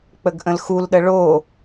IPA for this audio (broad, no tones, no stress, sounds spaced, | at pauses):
k͡p ə ɡ ʔ ə̃ l x u l ɗ ə ɭ o